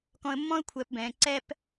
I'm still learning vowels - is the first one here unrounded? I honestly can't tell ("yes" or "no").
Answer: no